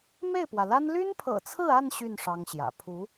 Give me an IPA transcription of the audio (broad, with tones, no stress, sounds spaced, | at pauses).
m e˥˩ ɪ̯ p w ä˩ l a˥ n l y˥ n pʰ ɤ̰˨˩ t͡sʰ ɹ̩˥˧ a˥˧ n ɕ y˥˩ n ʂ ɑ˥ ŋ ɕ j ä̰˨˩ pʰ u˧˥